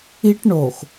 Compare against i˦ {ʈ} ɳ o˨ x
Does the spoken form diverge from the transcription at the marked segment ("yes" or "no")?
no